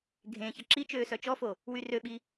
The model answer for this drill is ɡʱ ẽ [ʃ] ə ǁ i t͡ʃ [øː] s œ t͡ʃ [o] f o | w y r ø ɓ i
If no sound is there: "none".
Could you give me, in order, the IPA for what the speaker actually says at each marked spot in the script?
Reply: ç, øː, ɔ

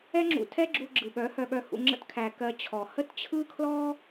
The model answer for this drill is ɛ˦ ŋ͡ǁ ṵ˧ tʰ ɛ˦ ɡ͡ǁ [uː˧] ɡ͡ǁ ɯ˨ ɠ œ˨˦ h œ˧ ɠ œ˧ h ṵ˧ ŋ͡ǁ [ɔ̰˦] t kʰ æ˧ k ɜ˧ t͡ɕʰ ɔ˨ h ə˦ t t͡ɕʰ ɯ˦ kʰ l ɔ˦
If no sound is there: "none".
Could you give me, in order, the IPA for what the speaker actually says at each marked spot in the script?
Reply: uː˧, ə̰˦

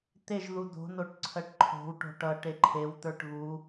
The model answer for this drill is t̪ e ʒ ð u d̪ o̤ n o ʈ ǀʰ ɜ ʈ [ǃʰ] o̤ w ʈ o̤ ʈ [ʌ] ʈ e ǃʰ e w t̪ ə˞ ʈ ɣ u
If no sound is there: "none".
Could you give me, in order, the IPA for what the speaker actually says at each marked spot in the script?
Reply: ǃʰ, ʌ

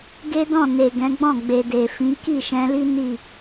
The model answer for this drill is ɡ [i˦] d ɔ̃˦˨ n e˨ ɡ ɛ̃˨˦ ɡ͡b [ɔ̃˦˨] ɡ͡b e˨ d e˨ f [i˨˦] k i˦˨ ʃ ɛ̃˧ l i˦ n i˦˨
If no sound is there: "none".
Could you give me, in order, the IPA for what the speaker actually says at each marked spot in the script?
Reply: e˦, ɔ̃˦˨, ĩ˨˦

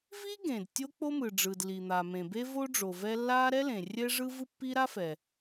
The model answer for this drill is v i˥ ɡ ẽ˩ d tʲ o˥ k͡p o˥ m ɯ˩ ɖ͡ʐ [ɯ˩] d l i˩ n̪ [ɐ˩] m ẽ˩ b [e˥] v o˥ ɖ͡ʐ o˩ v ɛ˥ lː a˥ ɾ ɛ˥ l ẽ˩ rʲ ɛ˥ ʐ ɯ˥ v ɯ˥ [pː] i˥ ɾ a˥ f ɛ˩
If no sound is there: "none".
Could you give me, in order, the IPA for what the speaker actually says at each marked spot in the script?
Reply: ɯ˩, a˩, e˥, pː

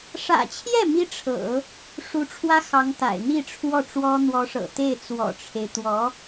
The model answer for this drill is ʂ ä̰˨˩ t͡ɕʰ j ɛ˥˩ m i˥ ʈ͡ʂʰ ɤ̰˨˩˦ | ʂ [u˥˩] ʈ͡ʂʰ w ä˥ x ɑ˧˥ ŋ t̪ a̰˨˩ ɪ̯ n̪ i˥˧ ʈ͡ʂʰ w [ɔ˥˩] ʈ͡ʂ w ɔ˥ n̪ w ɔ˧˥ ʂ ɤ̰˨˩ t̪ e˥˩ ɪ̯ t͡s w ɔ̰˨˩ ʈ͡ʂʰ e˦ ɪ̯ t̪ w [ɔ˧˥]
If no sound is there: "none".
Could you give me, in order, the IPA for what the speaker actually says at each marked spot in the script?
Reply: u˧˥, ɔ˥˩, ɔ˧˥

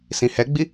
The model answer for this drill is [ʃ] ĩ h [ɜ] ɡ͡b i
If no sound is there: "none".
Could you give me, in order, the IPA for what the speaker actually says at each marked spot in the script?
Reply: s, ɛ

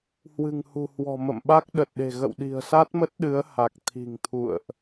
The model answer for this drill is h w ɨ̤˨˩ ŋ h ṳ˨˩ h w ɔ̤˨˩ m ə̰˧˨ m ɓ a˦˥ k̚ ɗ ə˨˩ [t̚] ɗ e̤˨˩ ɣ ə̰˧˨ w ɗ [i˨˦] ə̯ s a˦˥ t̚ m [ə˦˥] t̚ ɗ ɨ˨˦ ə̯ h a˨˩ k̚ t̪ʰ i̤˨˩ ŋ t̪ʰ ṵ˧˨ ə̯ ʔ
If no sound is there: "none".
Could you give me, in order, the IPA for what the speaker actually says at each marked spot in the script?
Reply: t̚, i̤˨˩, ə˦˥

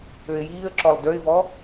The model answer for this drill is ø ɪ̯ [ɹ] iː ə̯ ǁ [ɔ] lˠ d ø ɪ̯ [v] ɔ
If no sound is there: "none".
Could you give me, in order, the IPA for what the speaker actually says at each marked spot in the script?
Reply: j, ɔ, v

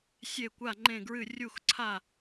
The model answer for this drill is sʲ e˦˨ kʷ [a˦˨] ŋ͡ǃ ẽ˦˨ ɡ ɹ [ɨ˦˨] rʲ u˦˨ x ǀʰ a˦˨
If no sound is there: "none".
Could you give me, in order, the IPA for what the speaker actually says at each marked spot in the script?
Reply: a˦˨, ɨ˦˨

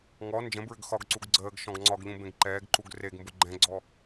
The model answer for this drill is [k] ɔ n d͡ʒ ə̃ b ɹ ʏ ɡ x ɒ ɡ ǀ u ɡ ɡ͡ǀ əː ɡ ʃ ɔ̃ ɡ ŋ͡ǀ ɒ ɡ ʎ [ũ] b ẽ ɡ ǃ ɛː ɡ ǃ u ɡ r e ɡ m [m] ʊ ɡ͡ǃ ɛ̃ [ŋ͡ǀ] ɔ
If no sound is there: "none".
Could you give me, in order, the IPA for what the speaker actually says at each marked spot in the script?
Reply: ŋ, ũ, b, ɡ͡ǀ

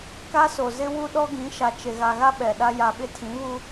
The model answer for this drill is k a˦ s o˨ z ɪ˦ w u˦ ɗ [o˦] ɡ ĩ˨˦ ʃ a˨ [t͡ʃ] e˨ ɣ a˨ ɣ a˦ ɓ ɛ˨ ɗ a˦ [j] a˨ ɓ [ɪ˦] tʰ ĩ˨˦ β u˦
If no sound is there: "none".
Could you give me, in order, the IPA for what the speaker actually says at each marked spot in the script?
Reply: ɔ˦, t͡ʃ, j, ɪ˦

